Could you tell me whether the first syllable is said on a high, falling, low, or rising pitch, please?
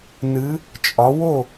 rising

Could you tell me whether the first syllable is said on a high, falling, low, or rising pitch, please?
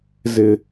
low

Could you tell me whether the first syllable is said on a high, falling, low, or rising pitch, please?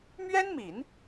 high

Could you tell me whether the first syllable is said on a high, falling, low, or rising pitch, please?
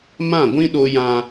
falling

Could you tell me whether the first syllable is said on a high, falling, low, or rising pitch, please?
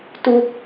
high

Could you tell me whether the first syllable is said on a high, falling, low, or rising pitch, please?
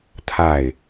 falling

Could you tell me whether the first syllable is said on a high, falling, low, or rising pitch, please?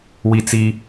high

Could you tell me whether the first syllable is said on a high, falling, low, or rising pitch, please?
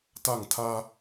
falling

